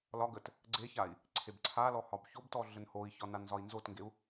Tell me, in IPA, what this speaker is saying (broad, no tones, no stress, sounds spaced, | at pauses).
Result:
l ɒ ɡ ə t | ɡ͡ǀ e ç a i̯ | ǀʰ e b ǀʰ a l ɔ h ɒ b ç o b t ɔ ɮ ə n h o i̯ ç ɒ n a n z ɒ i̯ n z o t ŋ ɡ e u̯